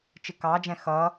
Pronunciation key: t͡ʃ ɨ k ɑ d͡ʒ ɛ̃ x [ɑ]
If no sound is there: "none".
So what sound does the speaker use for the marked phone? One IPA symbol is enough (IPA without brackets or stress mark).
ʌ